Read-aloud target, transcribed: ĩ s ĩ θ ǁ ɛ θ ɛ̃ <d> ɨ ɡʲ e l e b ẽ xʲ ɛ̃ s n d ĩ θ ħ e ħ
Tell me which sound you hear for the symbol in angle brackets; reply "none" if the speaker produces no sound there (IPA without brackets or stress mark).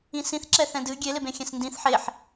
d